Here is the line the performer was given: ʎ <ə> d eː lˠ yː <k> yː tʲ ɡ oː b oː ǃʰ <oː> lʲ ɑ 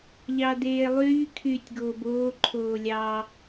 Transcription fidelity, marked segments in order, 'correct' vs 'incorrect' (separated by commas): incorrect, incorrect, correct